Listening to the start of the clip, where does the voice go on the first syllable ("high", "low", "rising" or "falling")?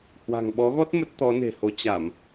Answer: low